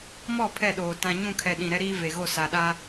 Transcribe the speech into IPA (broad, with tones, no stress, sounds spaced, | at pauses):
m ɔ˦˨ pʰ ɛ˦˨ ɗ oː˨ t ã˨ ɲ ũ˦˨ kʰ ɛ˨ ɗ ĩ˨ ɾ ɛ˦ ɾ iː˦ v e˨ ɣ o˦˨ s a˨ ɗ a˦